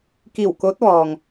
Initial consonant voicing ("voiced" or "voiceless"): voiceless